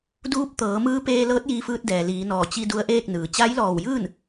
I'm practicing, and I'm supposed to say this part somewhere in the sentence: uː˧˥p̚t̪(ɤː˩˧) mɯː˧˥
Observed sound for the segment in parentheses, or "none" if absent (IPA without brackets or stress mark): ɤː˩˧